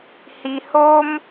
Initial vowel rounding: unrounded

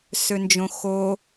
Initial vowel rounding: rounded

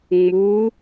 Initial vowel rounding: rounded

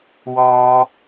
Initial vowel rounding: rounded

